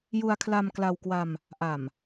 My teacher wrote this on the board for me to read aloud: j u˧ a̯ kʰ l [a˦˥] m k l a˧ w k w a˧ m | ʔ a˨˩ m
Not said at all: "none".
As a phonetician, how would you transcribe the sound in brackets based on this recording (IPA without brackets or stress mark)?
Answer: a˧